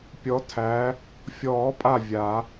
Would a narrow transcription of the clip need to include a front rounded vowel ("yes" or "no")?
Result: no